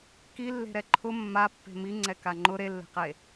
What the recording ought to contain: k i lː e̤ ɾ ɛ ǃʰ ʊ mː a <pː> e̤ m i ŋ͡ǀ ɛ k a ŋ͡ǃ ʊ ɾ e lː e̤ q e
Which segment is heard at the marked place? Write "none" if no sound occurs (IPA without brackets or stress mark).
pː